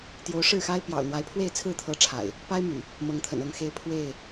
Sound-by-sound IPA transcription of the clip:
t̪ j o˨˦ ʊ̯ ʂ ɻ̩˥˨ x a˦ ɪ̯ p j ɑ̰˨˩ ʊ̯ n̪ w a˨˦ ɪ̯ pʰ w e˥˨ ɪ̯ t͡sʰ ɹ̩˥˨ t̪ʰ ɤ˨˦ ʈ͡ʂʰ a̰˨˩ ɪ̯ | p a˦ ɪ̯ m y̰˨˩ | m ɤ˨˦ ŋ t̪ʰ ə̰˨˩ n ɤ˥˨ ŋ x e˦ ɪ̯ pʰ w e˥˨ ɪ̯

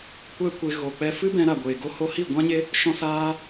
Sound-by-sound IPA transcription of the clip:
kʷ ɛ˦ kʷ e˧ ɣ o˨ k͡p ɛ˧ f ɨ˦ b ɛ̃˧ ɾ a˨ ɡʷ eː˨ ɡ o˧ h o˧ h i˦˨ ɡʷ ã˦ ɲ e˦ | ʃ ɔ̃˦ s aː˦

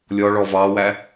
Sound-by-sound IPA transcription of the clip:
lʲ ɔ ɭ ɔ v ɑ w æ

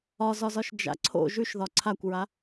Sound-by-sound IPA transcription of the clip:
ɒ z ɒ z ɒ ʃ d͡ʒ a̰ ǀʰ o̰ ʒ ʉ ʃ ð ɒ ǀʰ a kʷ ɹ a

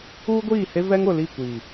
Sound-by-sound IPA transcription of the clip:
uː˦ ɡʷ iː˦˨ h e˦ v ɛ˦ ŋ ʊ˨ l i˦˨ kʷ iː˨

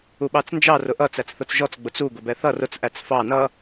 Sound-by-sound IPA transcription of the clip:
u ɓ ɑ t͡s n d͡ʒ ɑ r ʊ ʔ ʌ t͡s æ t͡s θ ʊ t͡s ʒ ɔ t͡s ɡ͡b ʊ t͡s u ɡ ʊ b ɛ θ ʌ r ʊ t͡s ʔ æ t͡s f ɑ n ʌ

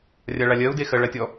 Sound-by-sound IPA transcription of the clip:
rʲ a ɭ a lʲ ɜ u̯ d e x ɜ ɭ a tʲ ɔ

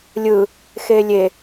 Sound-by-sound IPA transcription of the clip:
lʲ ɯ | x e lʲ e

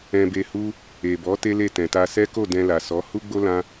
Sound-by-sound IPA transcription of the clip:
ɛ̃˧ b e˧ h u˦ | e˨ b ɔ˨˦ t e˦ l e˦˨ t ɛ̃˨ t a˧ s ɛ˦ k o˦˨ d ɛ̃˧ l a˨ s ɔ˨˦ h u˦ ɡ͡b o˦ l ã˦

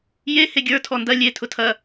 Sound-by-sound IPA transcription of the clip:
j e h e ɡʲ ə˞ tʰ ɔ n d ɐ lʲ e tʰ ʊ tʰ ɐ

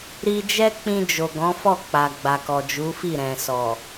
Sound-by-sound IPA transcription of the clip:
ɾ i˧ d͡ʒ ɛ˦ k͡p ĩ˧ d͡ʒ o˨ ɡ ɔ̃˨˦ f ɔ˦˨ k͡p a˨ ɡ͡b a˨ k ɔ˨ d͡ʒ u˨˦ f i˦˨ ɾ ɛ̃˨ s ɔ˨

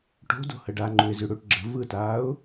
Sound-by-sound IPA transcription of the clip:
ʈ o̤ d o̤ h ə ɖ a ŋ͡ǃ u ɪ̯ z y ɽ u ʈ ɡ͡ǁ ə̤ v ɯ t aː ʊ̯

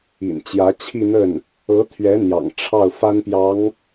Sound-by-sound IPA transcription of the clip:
ḭ˨˩ n t͡ɕ j ä˧˥ t͡ɕʰ i˥˧ n̪ ə˥˩ n | ɤ˧˥ t̪ʰ ɥ ɛ˧˥ n̪ j ɑ̰˨˩ ŋ ʈ͡ʂʰ ɑ˥˩ ʊ̯ f a˥ n p j ɑ˧˥ ŋ

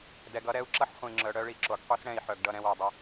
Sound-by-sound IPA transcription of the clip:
d ɛ˨ ɡ ʌ˦ ɾ ɛ˦ u̯ ǁ ʌ˦ ħ χʷ ĩ˨ ŋ͡ǁ œ˨ ɽ œ˦ ɭ i˨ ǁ o˨ ɡ qʷ i˦ s ɽ ɛ̃˦˨ i̯ ħ œ˨ ɡ ɖ ʌ˦˨ ɾ ɛ̃˦ w o˨ dˤ ʌ˦

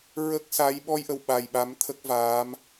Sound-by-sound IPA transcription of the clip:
ɹ ə˦˥ k̚ s a˧˥ j ɓ ɔ˧ j ʔ ə˨˩ w ɓ a˨˩ j ɓ a˧˥ m t̪ʰ ə˦˥ k̚ v aː˧˥ m

